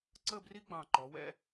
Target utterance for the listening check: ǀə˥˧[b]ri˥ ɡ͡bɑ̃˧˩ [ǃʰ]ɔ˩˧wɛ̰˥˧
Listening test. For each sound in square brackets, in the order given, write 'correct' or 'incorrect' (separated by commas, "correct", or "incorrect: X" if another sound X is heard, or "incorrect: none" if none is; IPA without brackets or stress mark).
correct, incorrect: ǃ